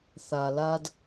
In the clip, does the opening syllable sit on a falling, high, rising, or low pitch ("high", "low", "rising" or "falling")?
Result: low